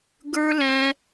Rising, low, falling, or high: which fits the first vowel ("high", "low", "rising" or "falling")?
high